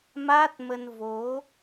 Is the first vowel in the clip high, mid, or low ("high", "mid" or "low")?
low